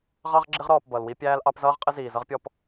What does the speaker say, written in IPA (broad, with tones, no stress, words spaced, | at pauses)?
ʁɑ˦ʁɡ͡ǁɪ˦ʁ ɾɔː˨p bʌ˨lwi˦ pʲæː˦lʔɑ˦p zʌː˦ʁqʼɪ˦ ziː˨zʌ˦ʁpʲɔ˦p